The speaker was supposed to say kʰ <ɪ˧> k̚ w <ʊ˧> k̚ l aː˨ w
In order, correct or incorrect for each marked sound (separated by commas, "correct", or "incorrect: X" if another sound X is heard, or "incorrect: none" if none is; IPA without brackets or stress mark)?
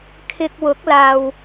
correct, incorrect: ʊ˨˥